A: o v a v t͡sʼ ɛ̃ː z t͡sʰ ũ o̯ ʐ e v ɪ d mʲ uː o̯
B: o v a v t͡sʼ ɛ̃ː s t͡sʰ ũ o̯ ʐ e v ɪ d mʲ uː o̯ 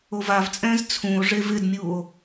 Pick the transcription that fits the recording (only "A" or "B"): A